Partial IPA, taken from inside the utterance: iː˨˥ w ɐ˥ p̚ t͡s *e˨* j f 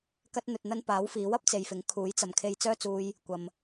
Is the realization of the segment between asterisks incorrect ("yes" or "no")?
no